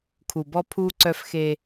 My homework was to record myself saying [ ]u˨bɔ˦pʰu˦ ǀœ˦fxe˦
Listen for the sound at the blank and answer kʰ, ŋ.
kʰ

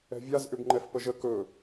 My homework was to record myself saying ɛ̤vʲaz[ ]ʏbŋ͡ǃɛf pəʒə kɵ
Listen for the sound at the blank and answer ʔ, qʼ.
ʔ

